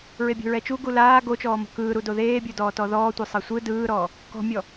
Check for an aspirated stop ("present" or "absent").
absent